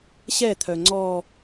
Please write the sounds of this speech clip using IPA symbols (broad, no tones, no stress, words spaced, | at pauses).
ɕɛt̪ʰœ ŋ͡ǀɔ